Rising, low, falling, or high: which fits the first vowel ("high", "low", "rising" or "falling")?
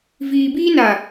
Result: low